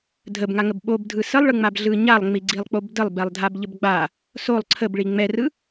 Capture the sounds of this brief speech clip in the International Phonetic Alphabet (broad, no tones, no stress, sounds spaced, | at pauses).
dʱ ə b ŋ a ŋ ə b ɓ o b dʱ ɯ s ə lˠ ɭ ɯ ŋ͡m a b ɮ ɯ ɲ a lˠ ŋ͡m i ɡ͡ǀ i lˠ k͡p o b d ə lˠ b ɛ lˠ dʱ a b ʎ ə b ɡ͡b a | s o lˠ ǀʰ ə b ɭ i ŋ͡m ɛ r ɯ